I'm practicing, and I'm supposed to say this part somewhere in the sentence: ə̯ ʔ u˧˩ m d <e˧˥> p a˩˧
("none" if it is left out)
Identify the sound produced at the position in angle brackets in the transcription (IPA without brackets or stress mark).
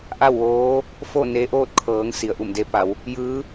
e˧